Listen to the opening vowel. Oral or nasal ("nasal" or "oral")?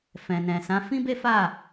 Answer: nasal